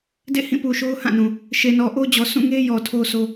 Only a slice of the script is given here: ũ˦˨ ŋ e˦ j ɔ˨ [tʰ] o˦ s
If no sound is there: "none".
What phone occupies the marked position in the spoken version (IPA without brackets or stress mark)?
tʰ